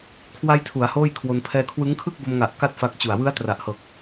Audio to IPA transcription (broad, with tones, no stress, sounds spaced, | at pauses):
kʰ w a˧ j tʰ u˩˦ a̯ h oː˥˩ j kʰ w o˧ n pʰ ɛː˧ kʰ w ɯ˦˥ ŋ kʰ ɯ˥˩ k̚ b o˧ m ŋ a˨˩ ʔ k a˥˩ t̚ f a˦˥ k̚ t͡ɕ u˨˩ a̯ w ɯ˦˥ a̯ t r a˨˩ ʔ h ɤː˨˩ k̚